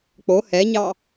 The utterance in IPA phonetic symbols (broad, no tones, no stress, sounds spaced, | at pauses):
k͡p o h ɛ ɲ ɑ